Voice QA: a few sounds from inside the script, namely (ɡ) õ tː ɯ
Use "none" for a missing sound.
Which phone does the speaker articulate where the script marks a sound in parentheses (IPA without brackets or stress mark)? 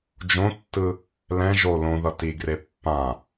d͡ʒ